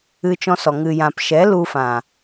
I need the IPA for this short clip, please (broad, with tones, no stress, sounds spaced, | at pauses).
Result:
ɨ˧ t͡ʃ ɔ̃˧ s ɔ˨ ŋ ɨ˨ j ã˨ p ʃ ɛ˨˦ l u˧ f ã˨